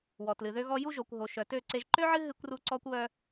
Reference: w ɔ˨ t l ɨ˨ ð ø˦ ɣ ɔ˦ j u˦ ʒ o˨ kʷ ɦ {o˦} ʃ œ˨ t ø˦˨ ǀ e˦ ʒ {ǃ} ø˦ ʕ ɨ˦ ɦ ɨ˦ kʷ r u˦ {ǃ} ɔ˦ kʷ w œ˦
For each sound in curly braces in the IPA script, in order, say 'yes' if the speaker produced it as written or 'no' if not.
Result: no, yes, no

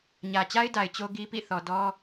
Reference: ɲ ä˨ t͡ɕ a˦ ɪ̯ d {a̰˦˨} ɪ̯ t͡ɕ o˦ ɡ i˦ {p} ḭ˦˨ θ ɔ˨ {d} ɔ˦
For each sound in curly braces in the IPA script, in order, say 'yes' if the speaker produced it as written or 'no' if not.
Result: no, yes, yes

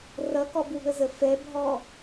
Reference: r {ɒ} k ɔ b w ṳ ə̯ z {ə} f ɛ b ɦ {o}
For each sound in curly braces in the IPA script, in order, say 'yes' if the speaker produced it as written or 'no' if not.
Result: no, yes, no

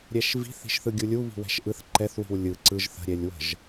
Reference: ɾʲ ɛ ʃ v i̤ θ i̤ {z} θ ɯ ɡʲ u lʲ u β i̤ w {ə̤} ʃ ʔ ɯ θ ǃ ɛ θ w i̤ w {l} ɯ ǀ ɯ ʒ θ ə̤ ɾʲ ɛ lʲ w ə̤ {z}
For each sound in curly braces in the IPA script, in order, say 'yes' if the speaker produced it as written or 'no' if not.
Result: no, no, no, no

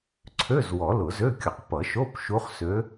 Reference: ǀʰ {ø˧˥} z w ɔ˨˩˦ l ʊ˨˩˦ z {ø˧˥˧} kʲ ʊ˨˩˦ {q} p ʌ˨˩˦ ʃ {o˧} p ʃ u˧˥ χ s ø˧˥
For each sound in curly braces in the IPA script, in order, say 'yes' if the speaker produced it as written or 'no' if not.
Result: no, yes, yes, no

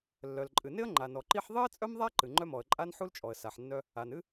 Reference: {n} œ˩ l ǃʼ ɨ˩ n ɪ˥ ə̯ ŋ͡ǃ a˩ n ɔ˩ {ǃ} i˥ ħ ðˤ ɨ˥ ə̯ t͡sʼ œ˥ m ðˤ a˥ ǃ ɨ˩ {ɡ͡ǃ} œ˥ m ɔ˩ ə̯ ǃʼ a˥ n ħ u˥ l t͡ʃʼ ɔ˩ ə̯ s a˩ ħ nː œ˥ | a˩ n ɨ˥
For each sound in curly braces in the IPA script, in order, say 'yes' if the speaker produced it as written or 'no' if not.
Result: no, yes, no

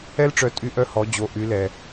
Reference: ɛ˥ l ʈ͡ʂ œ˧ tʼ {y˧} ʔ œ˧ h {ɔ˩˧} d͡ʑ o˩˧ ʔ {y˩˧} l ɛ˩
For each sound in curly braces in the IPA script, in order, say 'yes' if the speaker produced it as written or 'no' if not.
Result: no, yes, yes

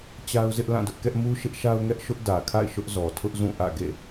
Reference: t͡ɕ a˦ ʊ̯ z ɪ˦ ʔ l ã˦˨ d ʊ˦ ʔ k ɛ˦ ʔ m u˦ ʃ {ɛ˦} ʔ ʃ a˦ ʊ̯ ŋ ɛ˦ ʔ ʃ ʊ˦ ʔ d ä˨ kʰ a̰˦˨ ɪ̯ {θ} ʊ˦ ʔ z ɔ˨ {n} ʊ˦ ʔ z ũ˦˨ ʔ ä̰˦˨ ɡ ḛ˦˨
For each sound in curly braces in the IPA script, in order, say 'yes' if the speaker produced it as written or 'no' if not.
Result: no, no, no

